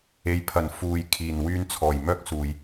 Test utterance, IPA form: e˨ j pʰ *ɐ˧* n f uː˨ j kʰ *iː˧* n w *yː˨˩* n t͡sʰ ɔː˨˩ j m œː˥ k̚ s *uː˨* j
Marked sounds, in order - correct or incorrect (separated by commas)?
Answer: incorrect, incorrect, incorrect, correct